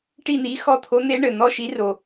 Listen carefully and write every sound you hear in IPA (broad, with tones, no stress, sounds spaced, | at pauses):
ʈ i˦˨ n̪ i˨˦ x ɔ˦˨ t̪ʰ o˨˦ n̪ e˨˦ ɳ ɘ˩ n̪ ɔ˦˨ ʃ i˨˦ r o˩